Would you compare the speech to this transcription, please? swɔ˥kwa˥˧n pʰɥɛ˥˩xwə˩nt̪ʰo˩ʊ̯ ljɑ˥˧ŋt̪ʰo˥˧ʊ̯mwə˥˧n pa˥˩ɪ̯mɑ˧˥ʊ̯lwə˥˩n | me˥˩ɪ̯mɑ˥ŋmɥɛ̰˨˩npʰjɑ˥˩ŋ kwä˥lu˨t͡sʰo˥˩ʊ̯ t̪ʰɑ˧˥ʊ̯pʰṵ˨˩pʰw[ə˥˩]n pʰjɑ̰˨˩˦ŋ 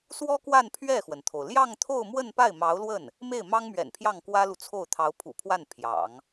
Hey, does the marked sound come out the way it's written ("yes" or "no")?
no